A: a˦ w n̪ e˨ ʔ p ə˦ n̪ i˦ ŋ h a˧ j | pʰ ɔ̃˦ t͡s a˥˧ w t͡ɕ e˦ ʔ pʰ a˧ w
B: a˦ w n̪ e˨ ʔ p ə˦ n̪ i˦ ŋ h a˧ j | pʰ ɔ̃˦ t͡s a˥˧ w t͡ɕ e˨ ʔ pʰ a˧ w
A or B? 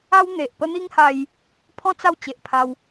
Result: B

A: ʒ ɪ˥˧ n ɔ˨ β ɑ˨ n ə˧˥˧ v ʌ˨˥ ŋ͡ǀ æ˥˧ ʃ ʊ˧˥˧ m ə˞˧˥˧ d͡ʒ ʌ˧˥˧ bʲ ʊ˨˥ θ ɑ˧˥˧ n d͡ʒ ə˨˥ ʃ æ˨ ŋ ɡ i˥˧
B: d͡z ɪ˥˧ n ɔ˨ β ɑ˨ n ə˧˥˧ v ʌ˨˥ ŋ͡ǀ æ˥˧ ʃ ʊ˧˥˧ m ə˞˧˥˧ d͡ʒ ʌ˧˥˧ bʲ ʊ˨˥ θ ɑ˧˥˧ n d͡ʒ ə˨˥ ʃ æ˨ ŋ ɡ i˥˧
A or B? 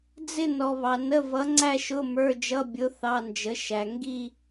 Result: B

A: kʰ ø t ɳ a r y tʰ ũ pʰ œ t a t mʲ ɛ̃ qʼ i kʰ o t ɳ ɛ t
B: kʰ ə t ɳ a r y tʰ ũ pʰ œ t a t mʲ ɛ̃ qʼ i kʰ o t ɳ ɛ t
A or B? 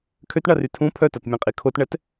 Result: A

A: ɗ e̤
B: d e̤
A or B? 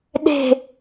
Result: A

